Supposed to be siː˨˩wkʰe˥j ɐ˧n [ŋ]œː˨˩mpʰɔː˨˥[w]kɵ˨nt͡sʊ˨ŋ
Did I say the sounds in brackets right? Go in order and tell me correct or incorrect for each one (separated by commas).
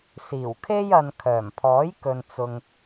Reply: incorrect, incorrect